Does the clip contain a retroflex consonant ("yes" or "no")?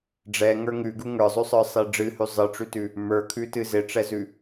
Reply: yes